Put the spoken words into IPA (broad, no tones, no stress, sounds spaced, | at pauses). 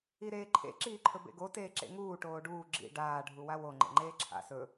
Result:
i ɾ eː ǃʰ ḛ ǁ iː ǃʰ ɵ b ḛ ɡ o t eː ǁ ḛ ŋ uː ʈ oː ɖ uː ɡ͡ǁ ḭ ɖ aː ɖʱ u w a w o ŋ͡ǃ ḛ ŋ͡ǃ eː ǁʰ a̰ s ɵ